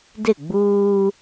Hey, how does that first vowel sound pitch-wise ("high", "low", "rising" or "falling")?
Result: falling